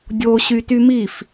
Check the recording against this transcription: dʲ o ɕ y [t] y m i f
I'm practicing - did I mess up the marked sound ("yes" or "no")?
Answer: no